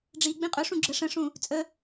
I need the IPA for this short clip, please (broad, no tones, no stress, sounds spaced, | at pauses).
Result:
ɖ͡ʐ i ɡ͡b ĩ qʼ ɵ ʂ ũ ɡ͡ǁ ə ʂ ə̃ ʂ ũ | t͡sʼ ə